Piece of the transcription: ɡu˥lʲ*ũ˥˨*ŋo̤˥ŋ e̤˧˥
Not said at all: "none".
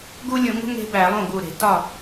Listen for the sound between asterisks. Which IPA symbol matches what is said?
ũ˧˩˧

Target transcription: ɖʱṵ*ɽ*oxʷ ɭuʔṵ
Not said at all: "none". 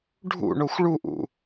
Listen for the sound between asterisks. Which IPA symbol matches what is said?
ɳ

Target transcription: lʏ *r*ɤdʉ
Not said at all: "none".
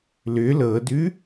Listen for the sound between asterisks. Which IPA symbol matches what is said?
l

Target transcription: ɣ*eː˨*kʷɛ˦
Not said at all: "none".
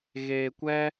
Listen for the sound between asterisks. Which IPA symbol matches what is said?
eː˨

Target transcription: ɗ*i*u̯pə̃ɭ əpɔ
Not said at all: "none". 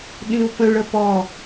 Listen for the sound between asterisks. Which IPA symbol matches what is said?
ĩ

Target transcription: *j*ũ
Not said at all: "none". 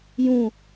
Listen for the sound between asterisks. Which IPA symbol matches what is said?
j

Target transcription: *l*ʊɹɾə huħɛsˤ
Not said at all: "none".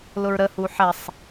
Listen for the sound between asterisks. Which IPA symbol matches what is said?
l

